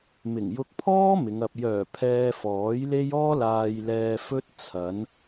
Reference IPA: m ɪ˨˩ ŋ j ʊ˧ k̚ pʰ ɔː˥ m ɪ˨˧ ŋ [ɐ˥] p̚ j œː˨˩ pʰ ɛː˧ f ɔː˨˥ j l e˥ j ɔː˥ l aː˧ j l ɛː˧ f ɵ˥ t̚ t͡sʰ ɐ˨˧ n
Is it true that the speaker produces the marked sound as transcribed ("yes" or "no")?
no